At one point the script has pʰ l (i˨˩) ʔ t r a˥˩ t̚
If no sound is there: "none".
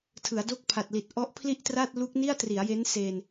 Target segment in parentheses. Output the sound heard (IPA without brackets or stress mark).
i˥˩